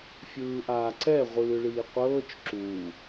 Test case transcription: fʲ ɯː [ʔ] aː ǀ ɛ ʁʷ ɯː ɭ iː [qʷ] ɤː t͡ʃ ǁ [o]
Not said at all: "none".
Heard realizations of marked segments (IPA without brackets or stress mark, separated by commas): ʔ, qʷ, u